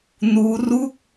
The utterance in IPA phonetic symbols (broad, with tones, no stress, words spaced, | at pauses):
nuː˦˥ ru˥˩k̚